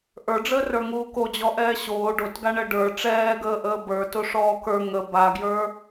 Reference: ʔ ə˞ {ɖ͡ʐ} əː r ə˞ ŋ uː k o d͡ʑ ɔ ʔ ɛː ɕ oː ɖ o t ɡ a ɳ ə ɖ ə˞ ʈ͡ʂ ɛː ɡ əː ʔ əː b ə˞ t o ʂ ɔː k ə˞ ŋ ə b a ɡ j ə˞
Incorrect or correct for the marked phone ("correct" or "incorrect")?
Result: correct